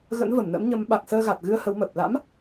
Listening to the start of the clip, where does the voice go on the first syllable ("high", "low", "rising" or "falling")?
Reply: rising